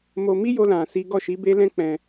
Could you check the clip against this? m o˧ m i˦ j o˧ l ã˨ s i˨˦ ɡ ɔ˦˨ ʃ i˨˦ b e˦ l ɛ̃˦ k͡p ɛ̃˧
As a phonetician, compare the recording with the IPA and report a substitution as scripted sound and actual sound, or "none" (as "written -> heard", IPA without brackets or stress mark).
none